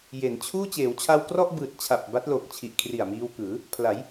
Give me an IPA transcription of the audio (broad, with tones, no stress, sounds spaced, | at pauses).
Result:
j e˩˦ n t͡ɕʰ uː˥˩ t͡ɕ eː˩˦ w t͡ɕʰ a˧ w k r ɔ˥˩ ʔ b ɯː˨˩ t̚ t͡ɕʰ a˨˩ p̚ b a˦˥ t̚ l o˨˩ k̚ t͡ɕʰ i˨˩ ʔ kʰ r i˨˩ a̯ m iː˧ w k ɯː˩˦ | pʰ l a˩˦ j